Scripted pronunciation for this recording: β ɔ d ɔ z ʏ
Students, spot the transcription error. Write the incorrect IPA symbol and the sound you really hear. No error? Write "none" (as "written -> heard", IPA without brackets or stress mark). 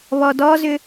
none